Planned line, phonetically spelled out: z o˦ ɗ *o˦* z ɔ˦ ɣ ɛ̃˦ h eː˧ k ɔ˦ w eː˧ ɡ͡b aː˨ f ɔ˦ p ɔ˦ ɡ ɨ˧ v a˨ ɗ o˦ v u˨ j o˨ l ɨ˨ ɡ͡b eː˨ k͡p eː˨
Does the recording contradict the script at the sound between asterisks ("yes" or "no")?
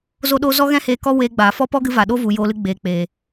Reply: no